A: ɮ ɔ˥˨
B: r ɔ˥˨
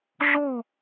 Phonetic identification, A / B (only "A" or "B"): A